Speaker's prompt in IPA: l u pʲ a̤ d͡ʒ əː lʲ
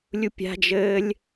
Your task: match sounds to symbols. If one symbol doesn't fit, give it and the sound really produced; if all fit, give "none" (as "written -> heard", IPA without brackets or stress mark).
l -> lʲ